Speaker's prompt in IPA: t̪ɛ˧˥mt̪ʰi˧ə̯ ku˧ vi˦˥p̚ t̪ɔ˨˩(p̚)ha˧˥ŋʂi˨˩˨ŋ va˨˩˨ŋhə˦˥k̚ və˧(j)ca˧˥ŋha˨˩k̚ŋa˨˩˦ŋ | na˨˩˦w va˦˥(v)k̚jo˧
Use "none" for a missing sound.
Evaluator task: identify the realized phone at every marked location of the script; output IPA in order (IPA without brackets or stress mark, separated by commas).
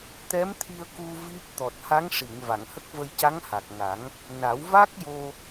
t̚, j, none